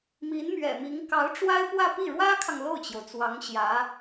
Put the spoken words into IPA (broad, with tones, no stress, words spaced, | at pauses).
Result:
mi˧˥nmɥɛ̰˨˩mi˧˥ŋ kɑ˧˥ʊ̯ʈ͡ʂwa˥ɪ̯pwä˥˧pi˥˩ ɻwä˥kʰɑ˨ŋ lo˥˩ʊ̯t͡ɕjo˩ʊ̯t͡swɑ˧˥ŋɕjä˧˥